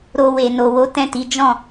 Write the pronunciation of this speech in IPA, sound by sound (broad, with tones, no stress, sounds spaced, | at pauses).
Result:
ɾ o˧ w e˨ n o˨ w o˨˦ t ɛ̃˦˨ t i˨˦ d͡ʒ ɔ̃˦˨